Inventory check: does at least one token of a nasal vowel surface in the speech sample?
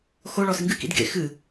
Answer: no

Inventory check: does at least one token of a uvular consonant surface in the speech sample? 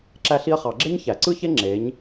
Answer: yes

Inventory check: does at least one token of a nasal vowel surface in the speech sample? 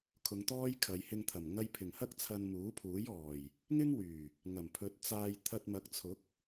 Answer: no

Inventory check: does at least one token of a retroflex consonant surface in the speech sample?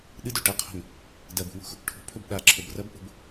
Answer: yes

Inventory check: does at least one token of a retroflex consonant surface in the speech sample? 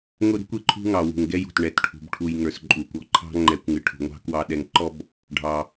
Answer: yes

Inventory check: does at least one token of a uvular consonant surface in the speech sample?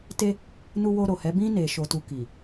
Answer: no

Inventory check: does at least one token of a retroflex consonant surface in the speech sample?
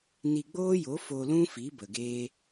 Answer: no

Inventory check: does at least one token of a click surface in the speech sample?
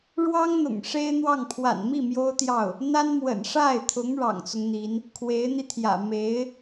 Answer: no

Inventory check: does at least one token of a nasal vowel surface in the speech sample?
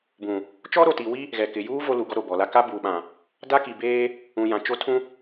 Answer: yes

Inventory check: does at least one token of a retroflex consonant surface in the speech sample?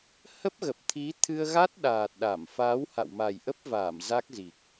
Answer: no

